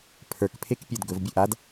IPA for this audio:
pʰ ə˞ k pʰ e k pʲ ə˞ d ɡ ɵ v bʲ ɵ ʔ a d

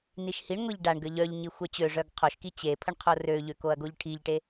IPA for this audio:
n i ʃ h i ɳ ŋʷ i ʎ ɖ a ɳ ɡ ə ʎ œ ʎ ɲ i xʷ œ t͡ɕ ø ʐ œ ɡ qʰ o ʃ k i t͡ɕ e pʰ ə ɳ qʰ o r ø ʎ ø k o ɐ̯ ɡ o ʎ ʈʰ i ʎ ʈ e

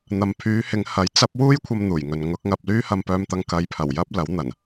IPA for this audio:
n̪ ɐ˨ m pʰ yː˨˧ h ɪ˨˧ ŋ h ɐ˨˥ j t͡s ɐ˥ p̚ w uː˥ j kʷʰ ɐ˧ m n̪ uː˨˩ j ŋ ɵ˨ n ŋ ʊ˨˥ k̚ ŋ ɐ˧ p̚ l yː˥ h ɐ˧ m p œː˧ m t̪ ɐ˧ ŋ k ɐ˨˧ j pʰ ɐ˨˩ w j ɐ˥ p̚ l ɐ˨˥ w n̪ ɐ˨˩ n

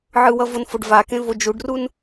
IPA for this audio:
ʕ ɯ w ʌ v o n f o ɖ v a k ẽ v o d͡ʒ u ɖ r u n

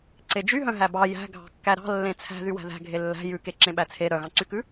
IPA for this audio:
ǀ e d͡ʒ y ɦ œ̃ ɦ æ b ɑ j æ̤ ɡʱ ɑ̤ kː æ ɾ ɑ̤ lː ẽ t͡sʰ æ̤ ð y w æ̤ ð æ̤ ɡʱ e lː æ̤ j ʉ k e ǁ ẽ ɓ æ t͡sʰ e ɾ œ ɣ ɑ̃ ǀ y k ʉ

